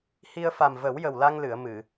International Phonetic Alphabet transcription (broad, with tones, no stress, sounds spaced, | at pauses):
h i˧ ə̯ f a˨˩ m v ə˨˩˦ w j ə˨˩ w l a˧ ŋ l ɨ˨˩˨ ə̯ m ɨ˨˩˨